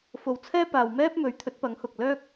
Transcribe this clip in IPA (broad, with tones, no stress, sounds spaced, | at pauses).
f o˨ w t͡sʰ ɛː˥ p aː˨ w m ɛː˥ p̚ m ɵ˨˥ ɥ t̪ʰ ɵ˨˥ t̚ p ɐ˨˥ ŋ h ʊ˨ k̚ l œː˥ k̚